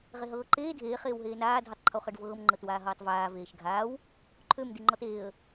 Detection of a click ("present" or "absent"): present